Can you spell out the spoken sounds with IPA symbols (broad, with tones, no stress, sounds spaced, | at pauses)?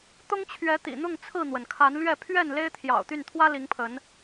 t̪ ʊ˦ ŋ t͡ɕʰ ɥ ɛ˨˦ t̪ ḭ˨˩ n̪ ʊ˥˨ ŋ t͡sʰ ɹ̩˥˨ n̪ w ə˩ n kʰ a˨˦ n l ɥ ɛ˥˨ pʰ ɥ ɛ˥˨ n l e˦ ɪ̯ t̪ʰ j ɑ̰˨˩ ʊ̯ t̪ y˥˨ n t̪ʰ w ä˦ l i˨˦ ŋ pʰ ə˨˦ n